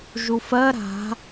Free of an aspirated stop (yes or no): yes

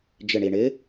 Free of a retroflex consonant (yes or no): no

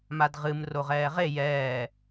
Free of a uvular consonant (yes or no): no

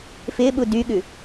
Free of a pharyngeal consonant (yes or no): yes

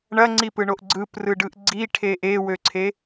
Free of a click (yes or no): no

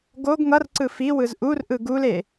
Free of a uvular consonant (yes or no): yes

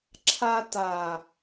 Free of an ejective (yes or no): yes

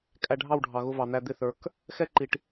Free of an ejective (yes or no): no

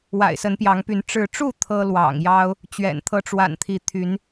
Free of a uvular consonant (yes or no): yes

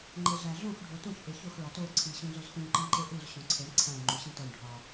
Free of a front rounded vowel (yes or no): yes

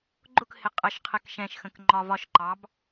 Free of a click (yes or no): no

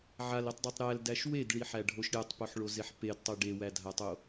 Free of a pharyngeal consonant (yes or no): no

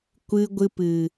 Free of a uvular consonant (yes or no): yes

